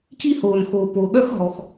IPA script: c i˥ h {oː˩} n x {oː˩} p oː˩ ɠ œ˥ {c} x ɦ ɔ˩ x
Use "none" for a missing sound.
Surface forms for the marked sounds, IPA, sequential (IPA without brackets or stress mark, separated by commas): oː˩, oː˩, none